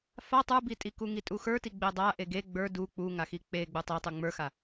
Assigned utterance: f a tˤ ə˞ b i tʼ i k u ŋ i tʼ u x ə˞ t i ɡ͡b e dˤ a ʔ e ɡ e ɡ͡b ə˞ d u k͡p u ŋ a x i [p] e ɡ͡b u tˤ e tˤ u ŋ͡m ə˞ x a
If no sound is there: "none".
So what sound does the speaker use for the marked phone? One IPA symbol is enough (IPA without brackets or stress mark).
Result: k͡p